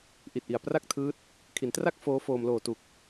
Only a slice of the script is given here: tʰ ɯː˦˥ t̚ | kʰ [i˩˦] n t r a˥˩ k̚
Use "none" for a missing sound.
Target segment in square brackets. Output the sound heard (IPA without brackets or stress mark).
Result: i˩˦